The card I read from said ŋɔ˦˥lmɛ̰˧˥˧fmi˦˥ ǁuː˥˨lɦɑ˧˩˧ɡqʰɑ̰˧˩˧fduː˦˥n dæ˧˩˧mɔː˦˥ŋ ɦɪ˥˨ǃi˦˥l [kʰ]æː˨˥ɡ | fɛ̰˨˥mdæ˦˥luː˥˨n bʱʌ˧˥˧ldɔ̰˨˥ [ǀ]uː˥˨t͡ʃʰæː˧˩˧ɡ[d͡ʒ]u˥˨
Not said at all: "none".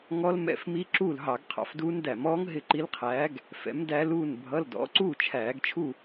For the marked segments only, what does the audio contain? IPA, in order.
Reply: qʰ, ǀ, t͡ʃʰ

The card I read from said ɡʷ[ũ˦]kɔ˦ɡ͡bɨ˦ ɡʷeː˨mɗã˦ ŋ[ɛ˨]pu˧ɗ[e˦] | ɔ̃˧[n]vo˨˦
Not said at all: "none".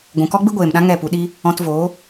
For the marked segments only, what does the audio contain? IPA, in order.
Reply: ũ˨, ɛ˦˨, i˦, t

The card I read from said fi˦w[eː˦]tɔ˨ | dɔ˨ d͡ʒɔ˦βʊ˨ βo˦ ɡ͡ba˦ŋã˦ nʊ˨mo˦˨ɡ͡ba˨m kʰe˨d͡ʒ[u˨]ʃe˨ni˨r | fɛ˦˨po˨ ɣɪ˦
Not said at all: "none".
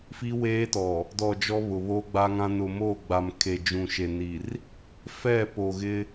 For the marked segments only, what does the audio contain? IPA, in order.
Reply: eː˦, ũ˨

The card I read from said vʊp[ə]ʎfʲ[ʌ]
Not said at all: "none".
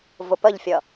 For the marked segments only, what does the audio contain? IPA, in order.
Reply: ə, ʌ

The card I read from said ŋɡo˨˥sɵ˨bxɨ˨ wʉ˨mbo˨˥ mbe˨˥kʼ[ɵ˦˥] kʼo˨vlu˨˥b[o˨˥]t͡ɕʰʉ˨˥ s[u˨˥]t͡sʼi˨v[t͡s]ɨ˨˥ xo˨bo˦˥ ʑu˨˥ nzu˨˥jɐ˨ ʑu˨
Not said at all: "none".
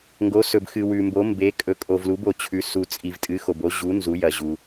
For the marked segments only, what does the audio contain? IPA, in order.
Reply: ɵ˨˥, o˨, u˨, tʼ

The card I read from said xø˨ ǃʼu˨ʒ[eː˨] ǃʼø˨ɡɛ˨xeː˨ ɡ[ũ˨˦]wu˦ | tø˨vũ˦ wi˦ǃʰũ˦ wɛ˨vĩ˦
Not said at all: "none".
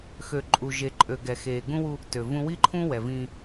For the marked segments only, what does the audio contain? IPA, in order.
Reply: e˨, ũ˦

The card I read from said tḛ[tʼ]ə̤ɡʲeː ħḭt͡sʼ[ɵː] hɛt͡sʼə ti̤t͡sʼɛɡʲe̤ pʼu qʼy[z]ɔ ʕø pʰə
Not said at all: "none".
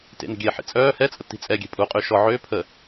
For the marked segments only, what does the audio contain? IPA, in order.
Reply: n, œː, ʃ

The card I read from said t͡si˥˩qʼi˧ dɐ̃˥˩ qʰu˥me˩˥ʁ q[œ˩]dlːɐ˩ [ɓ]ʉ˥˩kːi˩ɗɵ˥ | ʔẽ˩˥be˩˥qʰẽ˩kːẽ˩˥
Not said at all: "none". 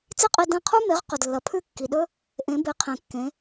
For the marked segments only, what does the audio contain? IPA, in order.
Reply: ɵ˩, pʰ

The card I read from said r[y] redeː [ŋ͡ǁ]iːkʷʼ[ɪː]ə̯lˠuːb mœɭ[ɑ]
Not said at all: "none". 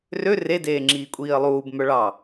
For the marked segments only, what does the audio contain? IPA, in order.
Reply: ø, ŋ͡ǁ, iː, ɑ

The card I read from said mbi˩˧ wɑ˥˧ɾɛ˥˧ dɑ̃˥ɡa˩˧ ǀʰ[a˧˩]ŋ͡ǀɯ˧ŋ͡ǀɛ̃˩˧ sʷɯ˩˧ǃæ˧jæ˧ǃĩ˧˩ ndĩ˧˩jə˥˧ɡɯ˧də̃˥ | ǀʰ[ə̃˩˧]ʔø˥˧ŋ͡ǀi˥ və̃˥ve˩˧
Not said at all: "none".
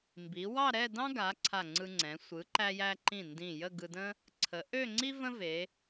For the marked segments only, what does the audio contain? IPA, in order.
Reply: a˧˩, ə˩˧

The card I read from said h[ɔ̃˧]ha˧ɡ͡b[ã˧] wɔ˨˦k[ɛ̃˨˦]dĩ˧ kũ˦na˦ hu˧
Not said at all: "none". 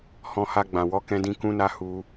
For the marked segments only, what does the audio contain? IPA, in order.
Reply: ɔ̃˧, ã˨, ɛ̃˧

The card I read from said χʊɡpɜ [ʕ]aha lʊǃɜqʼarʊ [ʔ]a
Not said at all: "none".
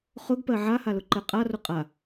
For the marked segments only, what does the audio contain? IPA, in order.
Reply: ʕ, qʼ

